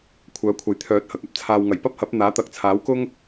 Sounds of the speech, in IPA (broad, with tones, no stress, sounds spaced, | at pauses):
kʷʰ œː˨˥ kʷʰ ɐ˨˥ j t̪ʰ œː˨˥ t̚ h ɐ˨ k̚ ɐ˥ p̚ t͡sʰ aː˨ w ŋ ɐ˨˩ j p ɐ˥ p̚ h ɐ˨˥ p̚ n̪ aː˨˥ t̪ ɐ˨˥ k̚ t͡sʰ aː˨˥ w k ʊ˥ ŋ